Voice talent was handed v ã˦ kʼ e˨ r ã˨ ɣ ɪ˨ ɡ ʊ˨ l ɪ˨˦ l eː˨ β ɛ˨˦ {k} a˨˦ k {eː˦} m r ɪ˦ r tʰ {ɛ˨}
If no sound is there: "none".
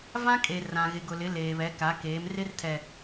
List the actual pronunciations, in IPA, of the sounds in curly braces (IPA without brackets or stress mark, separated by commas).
k, eː˨˦, ɛ˨